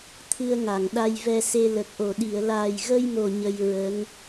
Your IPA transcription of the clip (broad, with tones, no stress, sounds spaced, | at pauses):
t̪ʰ ɨ˧ ə̯ ŋ a˨˩˨ ŋ ɗ a˧ j v ɛ˧ s e˧ l ə˨˩ k̚ ʔ o˨˩ ɗ i˨˩˨ ə̯ l aː˨˩ j ɣ ə˧ j m o˨˩ ɲ ə˧ j ɹ ə˧˥ ŋ